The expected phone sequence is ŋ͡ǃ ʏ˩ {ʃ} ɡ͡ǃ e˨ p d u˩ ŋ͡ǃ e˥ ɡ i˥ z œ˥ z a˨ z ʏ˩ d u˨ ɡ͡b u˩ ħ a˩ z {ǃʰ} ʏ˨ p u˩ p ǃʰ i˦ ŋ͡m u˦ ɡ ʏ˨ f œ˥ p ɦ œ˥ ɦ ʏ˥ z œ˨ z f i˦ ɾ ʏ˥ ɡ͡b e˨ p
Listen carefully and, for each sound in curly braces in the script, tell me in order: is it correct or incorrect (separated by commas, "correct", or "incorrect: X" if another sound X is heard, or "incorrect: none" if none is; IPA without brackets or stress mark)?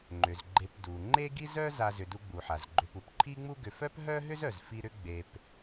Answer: incorrect: z, incorrect: ɡ͡ǃ